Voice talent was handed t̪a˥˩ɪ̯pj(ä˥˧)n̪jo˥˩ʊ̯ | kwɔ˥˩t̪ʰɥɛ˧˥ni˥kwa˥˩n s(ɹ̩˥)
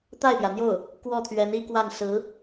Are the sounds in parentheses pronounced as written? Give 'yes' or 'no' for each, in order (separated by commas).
no, no